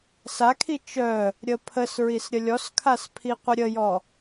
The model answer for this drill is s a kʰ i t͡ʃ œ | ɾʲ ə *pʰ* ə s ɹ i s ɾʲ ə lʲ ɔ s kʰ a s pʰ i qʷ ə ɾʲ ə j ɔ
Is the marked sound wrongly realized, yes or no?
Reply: no